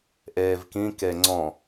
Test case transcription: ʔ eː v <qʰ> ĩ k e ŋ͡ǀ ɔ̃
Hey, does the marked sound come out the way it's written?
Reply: no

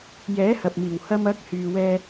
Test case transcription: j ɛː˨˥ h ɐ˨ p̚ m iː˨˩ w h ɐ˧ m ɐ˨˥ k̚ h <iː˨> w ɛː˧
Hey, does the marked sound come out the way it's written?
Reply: no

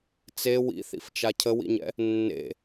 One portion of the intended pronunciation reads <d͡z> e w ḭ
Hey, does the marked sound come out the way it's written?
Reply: no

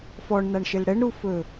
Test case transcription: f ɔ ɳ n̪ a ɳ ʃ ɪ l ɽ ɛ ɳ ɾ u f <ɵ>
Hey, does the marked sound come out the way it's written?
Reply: yes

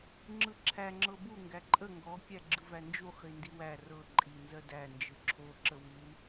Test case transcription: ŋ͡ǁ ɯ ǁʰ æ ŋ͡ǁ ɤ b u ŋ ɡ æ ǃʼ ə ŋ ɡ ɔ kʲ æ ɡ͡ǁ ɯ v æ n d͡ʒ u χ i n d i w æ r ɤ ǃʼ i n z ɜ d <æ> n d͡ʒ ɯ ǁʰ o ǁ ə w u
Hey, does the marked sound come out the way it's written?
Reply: yes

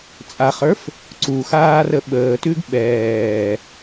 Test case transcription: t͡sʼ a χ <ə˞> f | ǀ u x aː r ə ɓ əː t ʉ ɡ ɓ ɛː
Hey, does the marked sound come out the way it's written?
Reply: yes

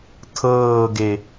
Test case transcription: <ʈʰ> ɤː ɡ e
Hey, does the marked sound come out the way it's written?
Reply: no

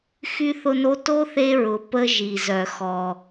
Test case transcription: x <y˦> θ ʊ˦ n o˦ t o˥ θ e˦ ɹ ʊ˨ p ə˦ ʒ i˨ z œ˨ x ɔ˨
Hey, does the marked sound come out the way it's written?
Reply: yes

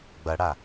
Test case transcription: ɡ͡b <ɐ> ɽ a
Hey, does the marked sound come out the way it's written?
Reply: yes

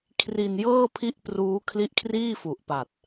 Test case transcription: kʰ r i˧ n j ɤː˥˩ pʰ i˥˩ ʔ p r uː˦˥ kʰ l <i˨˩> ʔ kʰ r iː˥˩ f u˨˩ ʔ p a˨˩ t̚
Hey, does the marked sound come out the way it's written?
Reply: no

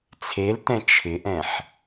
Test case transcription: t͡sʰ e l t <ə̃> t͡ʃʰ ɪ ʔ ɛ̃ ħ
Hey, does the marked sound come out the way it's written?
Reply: no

